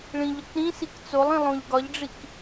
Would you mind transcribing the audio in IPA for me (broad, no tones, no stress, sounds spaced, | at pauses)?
ɭ ĩ ʎ ɒ k ɾ ĩ s i k t͡s o lˠ ĩ lˠ õ ʎ ɡ ɒ ʎ ɖ͡ʐ i k